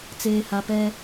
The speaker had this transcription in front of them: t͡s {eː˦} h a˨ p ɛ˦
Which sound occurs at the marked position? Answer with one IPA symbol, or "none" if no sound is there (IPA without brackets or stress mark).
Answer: eː˨